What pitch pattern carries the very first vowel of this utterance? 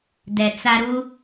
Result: low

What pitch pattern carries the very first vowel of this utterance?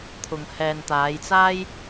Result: low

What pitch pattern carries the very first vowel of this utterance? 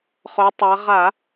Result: rising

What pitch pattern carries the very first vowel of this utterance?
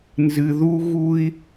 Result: low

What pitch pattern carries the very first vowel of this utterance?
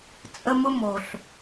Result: high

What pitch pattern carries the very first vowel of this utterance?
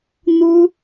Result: high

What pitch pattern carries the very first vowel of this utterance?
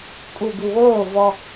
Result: low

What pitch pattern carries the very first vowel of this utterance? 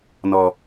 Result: low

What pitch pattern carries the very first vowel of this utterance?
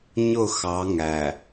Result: falling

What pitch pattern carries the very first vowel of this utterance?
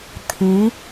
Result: rising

